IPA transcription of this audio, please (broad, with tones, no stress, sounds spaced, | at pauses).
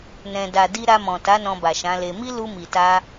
n ɛ̃˨ d a˨ d i˧ ɾ a˧ m ɔ̃˨ t a˨˦ n ɔ̃˧ b a˨ ʃ ã˨˦ l e˧ m i˦ l u˧ m i˨ t a˧